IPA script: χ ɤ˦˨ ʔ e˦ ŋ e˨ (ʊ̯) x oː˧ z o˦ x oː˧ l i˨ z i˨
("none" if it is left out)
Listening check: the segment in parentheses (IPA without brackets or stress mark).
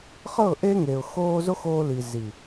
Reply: ʊ̯